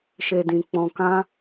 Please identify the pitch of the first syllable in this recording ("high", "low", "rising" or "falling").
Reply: low